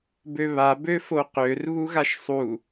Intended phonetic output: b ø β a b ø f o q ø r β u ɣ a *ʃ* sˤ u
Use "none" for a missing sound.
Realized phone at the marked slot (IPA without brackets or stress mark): ʃ